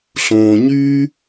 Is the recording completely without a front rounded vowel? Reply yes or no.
no